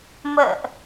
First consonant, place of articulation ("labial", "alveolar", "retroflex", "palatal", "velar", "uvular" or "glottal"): labial